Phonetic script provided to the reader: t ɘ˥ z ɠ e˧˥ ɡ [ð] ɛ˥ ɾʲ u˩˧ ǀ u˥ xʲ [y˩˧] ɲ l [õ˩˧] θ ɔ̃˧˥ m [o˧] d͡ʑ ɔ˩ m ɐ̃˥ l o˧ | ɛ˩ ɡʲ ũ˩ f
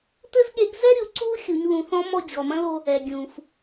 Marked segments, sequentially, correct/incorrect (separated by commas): incorrect, incorrect, incorrect, incorrect